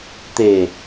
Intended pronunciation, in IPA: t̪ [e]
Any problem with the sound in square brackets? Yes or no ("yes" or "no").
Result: no